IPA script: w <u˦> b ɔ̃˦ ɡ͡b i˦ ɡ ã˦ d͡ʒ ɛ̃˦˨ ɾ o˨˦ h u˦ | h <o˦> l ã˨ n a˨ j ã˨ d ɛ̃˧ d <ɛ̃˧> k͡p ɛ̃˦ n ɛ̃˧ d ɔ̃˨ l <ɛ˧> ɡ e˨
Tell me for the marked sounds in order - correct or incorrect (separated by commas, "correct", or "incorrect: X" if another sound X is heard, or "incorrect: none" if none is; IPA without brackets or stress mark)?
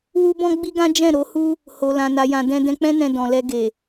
correct, incorrect: o˨, correct, correct